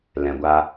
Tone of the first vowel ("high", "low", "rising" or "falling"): low